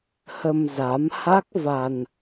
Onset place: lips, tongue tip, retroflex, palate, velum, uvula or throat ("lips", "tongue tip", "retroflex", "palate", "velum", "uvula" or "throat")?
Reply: throat